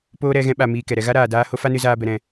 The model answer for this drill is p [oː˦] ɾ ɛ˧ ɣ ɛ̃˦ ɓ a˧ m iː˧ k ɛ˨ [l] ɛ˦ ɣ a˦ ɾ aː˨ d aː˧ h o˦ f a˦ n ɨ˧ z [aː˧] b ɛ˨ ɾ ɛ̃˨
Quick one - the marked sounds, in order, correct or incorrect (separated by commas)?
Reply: correct, incorrect, correct